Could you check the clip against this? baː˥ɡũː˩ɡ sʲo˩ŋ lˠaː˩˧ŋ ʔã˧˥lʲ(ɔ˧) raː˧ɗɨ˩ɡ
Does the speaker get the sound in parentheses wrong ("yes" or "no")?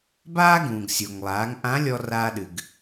no